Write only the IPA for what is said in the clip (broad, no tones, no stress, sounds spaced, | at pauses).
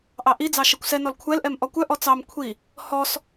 ʔ ɑ ʔ i d͡z ɑ ʃ ɛ kʷ s ɛ n ɔ l kʷʰ ɛ l ʔ ɛ m ʔ ɔ kʷ œ ʔ ɔ t͡s ɑ m kʷʰ i | h ɔ s